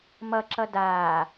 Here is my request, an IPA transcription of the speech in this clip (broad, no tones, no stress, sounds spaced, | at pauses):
m ʌ ǁ ʌ d aː